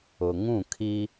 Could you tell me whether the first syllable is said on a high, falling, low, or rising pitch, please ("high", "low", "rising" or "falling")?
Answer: low